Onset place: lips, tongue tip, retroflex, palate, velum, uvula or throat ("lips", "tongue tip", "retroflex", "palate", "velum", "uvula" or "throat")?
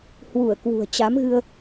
throat